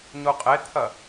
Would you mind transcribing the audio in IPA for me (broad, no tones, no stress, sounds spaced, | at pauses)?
ɲ u qʼ e t̪ʰ ɐ